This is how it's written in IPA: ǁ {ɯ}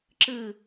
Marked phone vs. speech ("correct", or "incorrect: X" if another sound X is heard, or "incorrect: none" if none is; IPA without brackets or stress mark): correct